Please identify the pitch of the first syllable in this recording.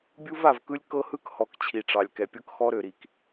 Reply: high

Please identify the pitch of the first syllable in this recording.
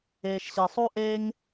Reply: low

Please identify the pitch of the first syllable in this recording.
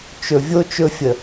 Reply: low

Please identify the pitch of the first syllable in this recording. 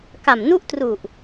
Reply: low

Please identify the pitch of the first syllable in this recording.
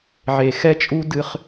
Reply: low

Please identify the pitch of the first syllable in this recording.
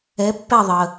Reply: rising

